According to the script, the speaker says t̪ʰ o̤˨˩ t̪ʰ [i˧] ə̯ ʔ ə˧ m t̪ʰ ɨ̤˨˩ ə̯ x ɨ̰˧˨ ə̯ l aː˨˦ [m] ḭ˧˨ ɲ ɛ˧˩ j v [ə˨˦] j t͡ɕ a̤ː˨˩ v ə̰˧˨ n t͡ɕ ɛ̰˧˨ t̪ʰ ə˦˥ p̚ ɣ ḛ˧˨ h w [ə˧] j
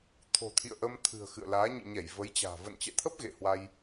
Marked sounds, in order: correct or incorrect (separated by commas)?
incorrect, incorrect, correct, incorrect